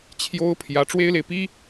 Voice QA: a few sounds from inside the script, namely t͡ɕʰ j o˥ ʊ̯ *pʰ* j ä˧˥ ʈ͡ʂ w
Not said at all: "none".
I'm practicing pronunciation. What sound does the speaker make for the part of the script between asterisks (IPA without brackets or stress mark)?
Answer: pʰ